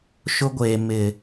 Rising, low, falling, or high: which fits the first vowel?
high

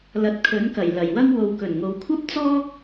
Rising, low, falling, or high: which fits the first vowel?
rising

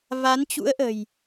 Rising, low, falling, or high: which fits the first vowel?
rising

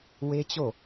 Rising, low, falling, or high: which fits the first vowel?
high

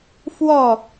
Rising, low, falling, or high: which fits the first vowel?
falling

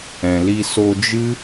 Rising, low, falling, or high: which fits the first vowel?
low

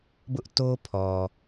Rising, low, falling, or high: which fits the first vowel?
high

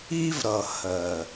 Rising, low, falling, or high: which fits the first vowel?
high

